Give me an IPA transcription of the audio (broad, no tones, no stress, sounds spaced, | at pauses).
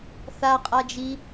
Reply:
θ a qʼ a d͡ʒ i